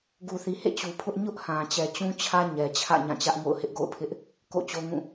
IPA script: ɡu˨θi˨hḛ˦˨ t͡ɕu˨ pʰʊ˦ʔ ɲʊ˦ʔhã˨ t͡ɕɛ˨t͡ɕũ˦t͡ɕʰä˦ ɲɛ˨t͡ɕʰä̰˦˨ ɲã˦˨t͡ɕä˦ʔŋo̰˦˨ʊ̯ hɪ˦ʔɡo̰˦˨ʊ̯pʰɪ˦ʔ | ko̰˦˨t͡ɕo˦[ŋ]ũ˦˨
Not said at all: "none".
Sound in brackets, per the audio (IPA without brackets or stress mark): ŋ